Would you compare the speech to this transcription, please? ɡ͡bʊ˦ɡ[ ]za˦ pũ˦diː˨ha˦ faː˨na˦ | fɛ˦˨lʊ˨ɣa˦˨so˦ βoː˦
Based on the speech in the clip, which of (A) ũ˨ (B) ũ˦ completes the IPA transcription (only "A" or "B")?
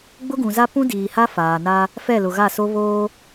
A